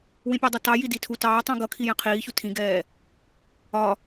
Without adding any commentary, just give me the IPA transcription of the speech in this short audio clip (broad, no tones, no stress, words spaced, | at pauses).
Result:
wĩpʲædˤʌtɑ jiditʰu tɑː tˤũɡʌ kʰijɛ̃qʰiːçu tʰĩɡɛː | ɒ